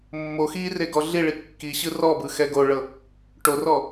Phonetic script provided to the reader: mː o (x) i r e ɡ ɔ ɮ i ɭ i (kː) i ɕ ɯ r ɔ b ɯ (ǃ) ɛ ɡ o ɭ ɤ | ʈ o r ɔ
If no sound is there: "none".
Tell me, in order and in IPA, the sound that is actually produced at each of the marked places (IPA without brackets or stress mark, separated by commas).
x, kː, x